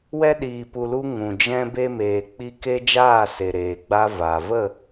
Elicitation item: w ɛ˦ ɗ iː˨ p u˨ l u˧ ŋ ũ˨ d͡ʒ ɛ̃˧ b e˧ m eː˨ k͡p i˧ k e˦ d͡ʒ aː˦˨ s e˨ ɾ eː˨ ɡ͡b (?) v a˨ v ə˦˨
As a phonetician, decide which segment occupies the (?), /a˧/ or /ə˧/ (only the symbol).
a˧